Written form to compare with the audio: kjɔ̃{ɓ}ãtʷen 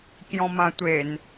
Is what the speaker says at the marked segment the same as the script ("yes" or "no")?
no